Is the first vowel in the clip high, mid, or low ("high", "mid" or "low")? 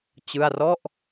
high